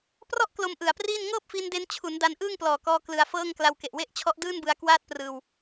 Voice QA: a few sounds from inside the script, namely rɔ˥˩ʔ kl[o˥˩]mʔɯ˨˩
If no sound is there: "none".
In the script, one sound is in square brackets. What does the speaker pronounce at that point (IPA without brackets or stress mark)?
o˦˥